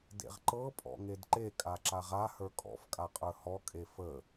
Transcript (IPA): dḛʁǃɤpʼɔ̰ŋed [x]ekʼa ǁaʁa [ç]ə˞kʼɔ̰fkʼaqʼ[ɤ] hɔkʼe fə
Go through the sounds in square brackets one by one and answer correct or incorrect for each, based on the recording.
incorrect, incorrect, incorrect

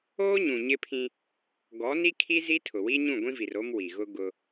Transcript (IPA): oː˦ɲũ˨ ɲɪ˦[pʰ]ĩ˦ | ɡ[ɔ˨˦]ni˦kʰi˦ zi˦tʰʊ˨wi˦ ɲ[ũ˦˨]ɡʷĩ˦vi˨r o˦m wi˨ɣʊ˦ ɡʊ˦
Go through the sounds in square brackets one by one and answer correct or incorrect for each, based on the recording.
correct, correct, correct

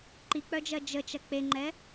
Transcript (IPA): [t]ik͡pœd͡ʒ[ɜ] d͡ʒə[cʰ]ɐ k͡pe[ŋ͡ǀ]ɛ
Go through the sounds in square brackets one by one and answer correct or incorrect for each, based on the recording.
incorrect, correct, incorrect, incorrect

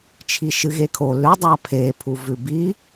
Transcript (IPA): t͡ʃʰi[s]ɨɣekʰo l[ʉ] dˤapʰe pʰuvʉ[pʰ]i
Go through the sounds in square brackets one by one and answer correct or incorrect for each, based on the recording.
incorrect, correct, incorrect

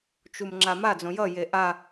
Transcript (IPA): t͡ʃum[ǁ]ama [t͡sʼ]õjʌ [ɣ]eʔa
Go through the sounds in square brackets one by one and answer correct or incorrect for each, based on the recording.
incorrect, incorrect, incorrect

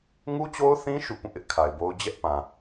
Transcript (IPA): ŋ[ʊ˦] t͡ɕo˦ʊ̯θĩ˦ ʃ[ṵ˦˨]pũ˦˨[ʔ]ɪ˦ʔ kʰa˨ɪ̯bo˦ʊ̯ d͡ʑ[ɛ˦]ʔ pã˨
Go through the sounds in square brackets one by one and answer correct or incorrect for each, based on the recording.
incorrect, correct, correct, correct

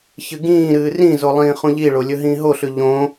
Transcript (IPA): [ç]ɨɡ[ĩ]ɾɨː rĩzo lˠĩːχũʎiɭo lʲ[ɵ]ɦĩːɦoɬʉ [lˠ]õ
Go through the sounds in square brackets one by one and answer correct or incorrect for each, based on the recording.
correct, incorrect, correct, incorrect

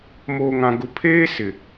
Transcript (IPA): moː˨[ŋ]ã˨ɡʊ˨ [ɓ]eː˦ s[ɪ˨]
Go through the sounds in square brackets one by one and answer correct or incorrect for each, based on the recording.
correct, incorrect, correct

